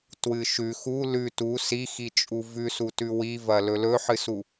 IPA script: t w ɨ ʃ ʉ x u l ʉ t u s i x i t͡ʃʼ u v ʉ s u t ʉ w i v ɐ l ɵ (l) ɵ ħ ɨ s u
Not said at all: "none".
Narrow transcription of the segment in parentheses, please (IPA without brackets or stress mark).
l